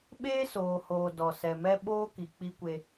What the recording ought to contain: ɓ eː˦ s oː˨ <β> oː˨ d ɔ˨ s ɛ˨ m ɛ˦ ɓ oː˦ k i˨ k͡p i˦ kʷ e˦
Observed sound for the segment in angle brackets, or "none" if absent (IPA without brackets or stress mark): h